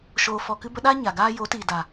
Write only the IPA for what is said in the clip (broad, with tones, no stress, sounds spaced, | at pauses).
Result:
ʃ oː˨ f ɔ˨ k ɨ˧ b ə˧ ɗ aː˦ ɲ a˨ ɡ aː˦ j o˨˦ t iː˨ d a˨